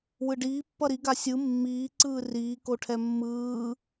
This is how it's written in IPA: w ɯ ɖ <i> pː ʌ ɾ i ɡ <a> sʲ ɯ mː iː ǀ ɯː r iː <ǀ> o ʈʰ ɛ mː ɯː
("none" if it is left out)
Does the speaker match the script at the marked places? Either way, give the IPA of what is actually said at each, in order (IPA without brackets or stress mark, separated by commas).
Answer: iː, a, k